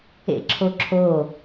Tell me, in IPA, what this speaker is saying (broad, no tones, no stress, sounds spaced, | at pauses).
ḛ ǁʰ o ǁʰ o